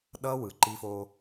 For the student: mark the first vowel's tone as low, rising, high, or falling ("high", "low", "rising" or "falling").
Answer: high